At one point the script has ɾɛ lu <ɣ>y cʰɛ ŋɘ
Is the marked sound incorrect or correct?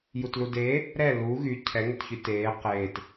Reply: correct